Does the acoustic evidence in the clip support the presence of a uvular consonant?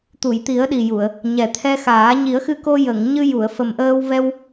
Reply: no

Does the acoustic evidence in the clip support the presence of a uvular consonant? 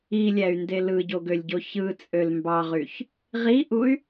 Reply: yes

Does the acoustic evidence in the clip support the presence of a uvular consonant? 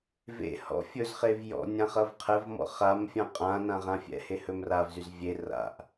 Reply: yes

